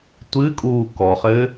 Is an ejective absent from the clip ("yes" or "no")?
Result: no